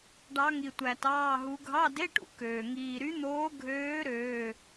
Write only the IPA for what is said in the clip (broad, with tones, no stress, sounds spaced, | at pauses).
ɖ ɑ˧˥ ŋ i˨ tʷ æ˨ t ɑː˧˥˧ ɦ u˧˥ ɡʱ ɑ˧˥˧ d e˧˥˧ ʈ ṵ˨ k øː˨ ŋ iː˨ ɾ y˧˥ n̪ oː˧˥ ɡʱ øː˧˥ ɾ øː˧˥˧